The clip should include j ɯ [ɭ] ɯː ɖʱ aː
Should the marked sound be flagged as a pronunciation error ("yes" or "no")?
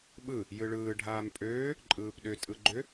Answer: no